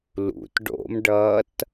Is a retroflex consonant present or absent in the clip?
present